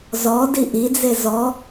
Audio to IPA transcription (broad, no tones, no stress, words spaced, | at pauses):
zɔ diʔid͡ze zɔ